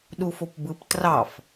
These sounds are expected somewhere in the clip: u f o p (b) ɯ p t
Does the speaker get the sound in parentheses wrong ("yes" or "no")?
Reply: no